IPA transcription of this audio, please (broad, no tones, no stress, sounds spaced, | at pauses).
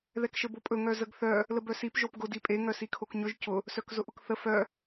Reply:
ð ɛ k ʃ ɘ b o pʼ ɵ ŋ œ z ə ɡ θ œ | l ə b œ s i p ʒ o p ɡ ʊ d i pʼ e ŋ œ s i kʰ o k ɲ ɵ ʒ c ʊ | s œ k z ʊ ʔ ʊ k θ ə f œ